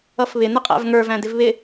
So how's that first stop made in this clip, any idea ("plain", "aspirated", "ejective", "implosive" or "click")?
ejective